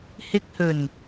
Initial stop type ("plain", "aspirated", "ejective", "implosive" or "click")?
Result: plain